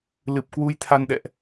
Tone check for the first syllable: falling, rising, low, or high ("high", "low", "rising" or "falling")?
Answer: low